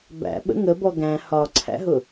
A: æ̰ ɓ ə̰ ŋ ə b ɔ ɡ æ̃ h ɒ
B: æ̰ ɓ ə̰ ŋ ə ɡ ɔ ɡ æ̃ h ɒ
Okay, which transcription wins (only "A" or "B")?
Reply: A